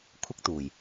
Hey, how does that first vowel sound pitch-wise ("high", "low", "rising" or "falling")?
high